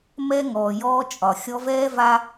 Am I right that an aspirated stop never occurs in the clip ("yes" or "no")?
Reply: yes